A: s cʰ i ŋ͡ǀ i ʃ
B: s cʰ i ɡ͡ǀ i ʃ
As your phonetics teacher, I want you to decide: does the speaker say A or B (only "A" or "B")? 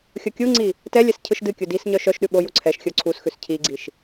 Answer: B